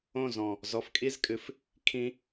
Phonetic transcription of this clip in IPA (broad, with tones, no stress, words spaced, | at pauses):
õ˦˨zɔ̃˨˩ | zɔ˨˦fkʼi˦˥zkʼɨ˨˦f | kʰĩ˦˥